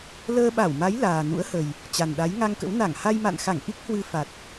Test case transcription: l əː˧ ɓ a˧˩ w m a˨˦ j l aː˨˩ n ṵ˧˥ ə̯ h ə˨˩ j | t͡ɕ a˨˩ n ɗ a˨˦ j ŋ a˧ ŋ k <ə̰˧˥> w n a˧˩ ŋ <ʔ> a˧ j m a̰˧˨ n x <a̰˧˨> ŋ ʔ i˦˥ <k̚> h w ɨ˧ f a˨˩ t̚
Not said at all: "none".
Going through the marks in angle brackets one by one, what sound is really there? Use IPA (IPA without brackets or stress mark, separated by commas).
ə̰˧˥, h, a˧˩, k̚